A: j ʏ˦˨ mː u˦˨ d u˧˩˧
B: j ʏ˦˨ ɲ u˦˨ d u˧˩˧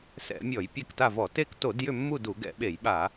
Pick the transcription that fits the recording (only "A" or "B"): A